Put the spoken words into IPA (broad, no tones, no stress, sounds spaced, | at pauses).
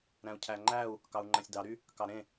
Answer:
ɾ æ̃ u̯ cʰ æ ŋ͡ǃ æ u̯ | k ɑ u̯ ŋ͡ǃ æ̃ sʲ d ɑ ɾ y | k ɑ ɾ ẽ